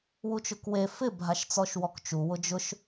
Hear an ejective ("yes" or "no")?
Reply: no